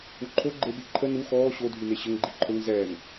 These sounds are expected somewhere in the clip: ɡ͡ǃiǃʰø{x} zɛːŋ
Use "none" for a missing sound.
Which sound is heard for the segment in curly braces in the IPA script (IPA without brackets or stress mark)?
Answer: ŋ